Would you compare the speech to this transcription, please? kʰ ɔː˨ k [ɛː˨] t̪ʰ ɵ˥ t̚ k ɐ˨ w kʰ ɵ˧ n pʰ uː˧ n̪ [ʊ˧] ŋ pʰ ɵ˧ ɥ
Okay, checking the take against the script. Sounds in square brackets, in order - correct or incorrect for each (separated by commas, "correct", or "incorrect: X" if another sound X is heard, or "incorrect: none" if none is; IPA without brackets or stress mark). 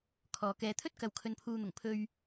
correct, incorrect: ʊ˨˩